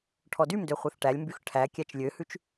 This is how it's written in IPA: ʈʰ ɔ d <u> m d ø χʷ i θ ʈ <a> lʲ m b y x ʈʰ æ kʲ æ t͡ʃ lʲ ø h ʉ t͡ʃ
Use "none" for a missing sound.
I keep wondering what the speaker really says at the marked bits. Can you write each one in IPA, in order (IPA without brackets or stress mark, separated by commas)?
y, æ